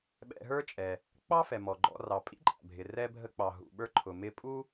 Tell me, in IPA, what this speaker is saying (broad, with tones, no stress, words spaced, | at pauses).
ɓɛ̰˧ɦə˞˥t͡ʃʼɛ˩ | k͡pɑ˥fɛ˩ mɔ˩ɡ͡ǃɔ̰˧ rɑ˩ pʼḭ˥ǃʼæ̰˩bʱɪ˩ rɛ˧bʱə˧k͡pɑ˩ ɦṵ˩ɓə˞˧ǃʰʊ˩ mɪ˧pʼu˥